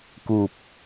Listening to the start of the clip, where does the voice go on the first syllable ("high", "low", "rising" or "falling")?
low